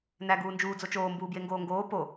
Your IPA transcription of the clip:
n æ ɡ uː n d͡ʒ uː d͡z o t͡ʃ oː m b uː b j e ŋ ɡ oː ŋ ɡ oː p o

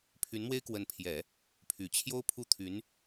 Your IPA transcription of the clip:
pʰ y˧˥ n m w e˥ ɪ̯ k w ə˧˥ n pʰ j ɛ˨˩˦ | pʰ y˨˩ t͡ɕʰ j o˥ ʊ̯ pʰ u˥˩ t̪ʰ y˧˥ n

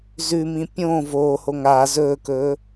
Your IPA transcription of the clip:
z ʉ m ĩ pʲ õː v oː h o ŋ aː z ɵː k ɵː

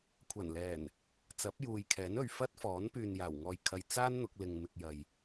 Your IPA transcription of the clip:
kʷʰ ɐ˨˩ n l ɛː˨˩ n | t͡s ɐ˨˥ p̚ j uː˨ j kʰ ɛː˨˥ n ɵ˨ ɥ f ɐ˥ t̚ f ɔː˨˥ n p yː˨ n j aː˨˩ w ŋ ɔː˨ j kʰ ɐ˨ j t͡s aː˥ n n̪ ʊ˨˥ k̚ l ɪ˧ ŋ m ɪ˧ k̚ j ɐ˨ j

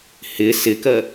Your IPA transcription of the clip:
h ɪ s ɪ k ɜ

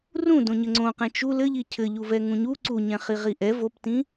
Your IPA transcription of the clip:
r ũ d õ ɲ ɘ ŋ͡ǀ õ q ɛ̃ t͡ʃ u l ɘ ʎ i cʰ ɘ ʎ u v ɛ ŋ ũ ɲ u ǀ u ɲ ɛ̃ χ i ʁ i ʔ ɛ v o p t ĩ

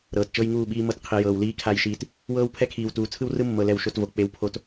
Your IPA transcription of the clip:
ɾ ɤː˨ t t͡ʃ ɤ˦ j ŋ uː˦˨ ɓ iː˦ m ɤ˦ t qʰ i˨ j ɤː˨ w l iː˦ kʰ a˦˨ j ʃ iː˨ t | w ɤː˦ w pʰ ɛ˦ kʰ iː˨ w t uː˨ t͡sʰ ɯ˦ w r ɯ˦ mː ɤ˨ l ɛ˦ w ʃ o˦ t v o˨ k͡p e˨ w pʰ o˨ t

